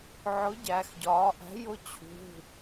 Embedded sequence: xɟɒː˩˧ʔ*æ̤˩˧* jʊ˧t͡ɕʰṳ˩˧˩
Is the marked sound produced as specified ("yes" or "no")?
no